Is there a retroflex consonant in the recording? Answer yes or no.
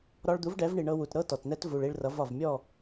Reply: yes